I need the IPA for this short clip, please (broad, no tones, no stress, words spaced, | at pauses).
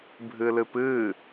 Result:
bʱɨlɨpɨ